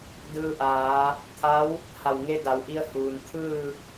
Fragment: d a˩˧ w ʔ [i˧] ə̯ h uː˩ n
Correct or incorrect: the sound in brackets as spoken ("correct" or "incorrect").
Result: correct